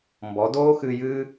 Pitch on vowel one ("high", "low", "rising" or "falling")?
rising